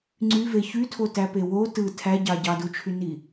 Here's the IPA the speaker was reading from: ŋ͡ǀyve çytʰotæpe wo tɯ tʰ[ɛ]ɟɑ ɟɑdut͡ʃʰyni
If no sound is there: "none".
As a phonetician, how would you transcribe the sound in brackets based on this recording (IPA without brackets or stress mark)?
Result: æ